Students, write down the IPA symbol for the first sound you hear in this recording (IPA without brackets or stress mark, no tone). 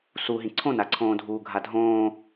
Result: s